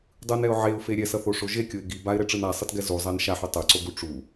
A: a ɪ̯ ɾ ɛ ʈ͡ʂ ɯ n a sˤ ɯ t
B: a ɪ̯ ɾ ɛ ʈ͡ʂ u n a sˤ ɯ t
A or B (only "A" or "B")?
A